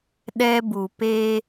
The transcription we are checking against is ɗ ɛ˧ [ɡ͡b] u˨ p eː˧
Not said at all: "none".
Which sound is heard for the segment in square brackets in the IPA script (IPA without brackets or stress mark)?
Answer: b